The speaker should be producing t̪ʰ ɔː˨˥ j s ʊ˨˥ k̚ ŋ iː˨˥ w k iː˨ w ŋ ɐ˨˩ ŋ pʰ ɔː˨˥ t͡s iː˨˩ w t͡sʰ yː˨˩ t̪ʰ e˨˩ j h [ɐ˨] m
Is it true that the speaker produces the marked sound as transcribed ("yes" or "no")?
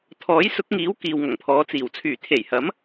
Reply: no